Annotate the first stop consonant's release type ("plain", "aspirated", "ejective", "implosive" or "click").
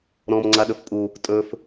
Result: click